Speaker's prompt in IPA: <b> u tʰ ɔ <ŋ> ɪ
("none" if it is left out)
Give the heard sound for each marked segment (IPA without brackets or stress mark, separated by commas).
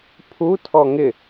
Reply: pʰ, ŋ